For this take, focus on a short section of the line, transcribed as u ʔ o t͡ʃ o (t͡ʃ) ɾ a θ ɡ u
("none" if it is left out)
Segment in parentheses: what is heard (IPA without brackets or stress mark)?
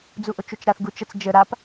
t͡ʃ